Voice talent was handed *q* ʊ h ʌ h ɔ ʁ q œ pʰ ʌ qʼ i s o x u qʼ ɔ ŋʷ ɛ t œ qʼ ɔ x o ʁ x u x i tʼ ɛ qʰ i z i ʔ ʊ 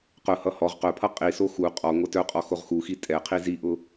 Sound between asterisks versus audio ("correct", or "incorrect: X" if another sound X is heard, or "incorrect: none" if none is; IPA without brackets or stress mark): correct